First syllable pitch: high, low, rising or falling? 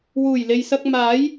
low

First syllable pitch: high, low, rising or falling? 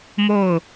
falling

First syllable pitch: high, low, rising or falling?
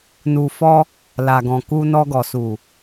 low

